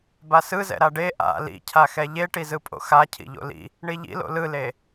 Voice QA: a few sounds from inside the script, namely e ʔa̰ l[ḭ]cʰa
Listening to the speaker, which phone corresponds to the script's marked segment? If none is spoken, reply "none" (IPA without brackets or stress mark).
ḭ